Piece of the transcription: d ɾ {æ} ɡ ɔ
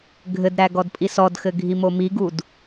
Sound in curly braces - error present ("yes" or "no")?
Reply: no